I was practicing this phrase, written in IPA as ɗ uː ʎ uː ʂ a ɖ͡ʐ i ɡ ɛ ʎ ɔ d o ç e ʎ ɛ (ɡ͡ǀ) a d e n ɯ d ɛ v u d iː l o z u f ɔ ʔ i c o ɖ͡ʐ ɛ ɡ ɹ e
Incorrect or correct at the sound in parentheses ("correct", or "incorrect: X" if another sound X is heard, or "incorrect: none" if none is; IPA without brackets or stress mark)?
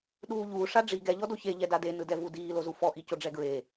incorrect: d